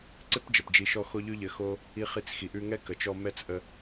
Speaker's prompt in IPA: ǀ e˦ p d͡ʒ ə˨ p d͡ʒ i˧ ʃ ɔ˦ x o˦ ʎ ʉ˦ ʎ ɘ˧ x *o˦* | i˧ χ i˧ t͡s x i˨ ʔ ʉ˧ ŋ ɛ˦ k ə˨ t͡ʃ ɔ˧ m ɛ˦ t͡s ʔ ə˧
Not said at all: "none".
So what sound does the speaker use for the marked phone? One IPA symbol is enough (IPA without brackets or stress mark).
o˦